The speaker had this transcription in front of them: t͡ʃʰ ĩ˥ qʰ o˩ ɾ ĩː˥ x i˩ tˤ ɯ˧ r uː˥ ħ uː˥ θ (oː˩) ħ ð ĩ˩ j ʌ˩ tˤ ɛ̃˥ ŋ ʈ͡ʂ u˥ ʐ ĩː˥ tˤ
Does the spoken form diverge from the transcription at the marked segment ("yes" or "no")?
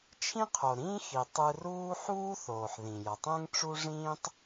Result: no